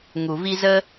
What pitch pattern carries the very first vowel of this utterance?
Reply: low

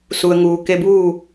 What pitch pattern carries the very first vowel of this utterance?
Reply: low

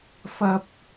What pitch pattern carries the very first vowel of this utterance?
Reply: high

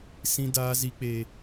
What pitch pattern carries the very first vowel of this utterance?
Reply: high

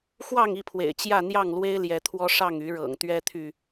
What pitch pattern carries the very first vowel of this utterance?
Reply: falling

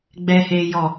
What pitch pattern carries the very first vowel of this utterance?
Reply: high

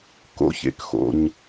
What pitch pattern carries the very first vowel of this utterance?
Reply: rising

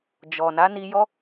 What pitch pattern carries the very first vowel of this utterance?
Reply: low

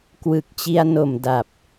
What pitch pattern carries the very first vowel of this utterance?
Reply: low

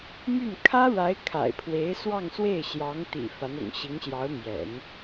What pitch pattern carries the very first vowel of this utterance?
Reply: falling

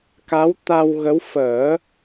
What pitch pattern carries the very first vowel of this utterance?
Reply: rising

